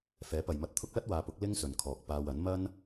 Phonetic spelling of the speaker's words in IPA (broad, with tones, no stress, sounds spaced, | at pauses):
f ɛː˨˥ p ɐ˨ j m ɐ˧ t̚ t̪ʰ ʊ˥ k̚ l ɐ˥ t̚ w aː˨˧ p ʊ˨˥ k̚ l ɪ˥ ŋ s ɵ˨ n kʰ ɔː˨ k̚ p aː˧ w ɐ˨˥ n m ɐ˥ n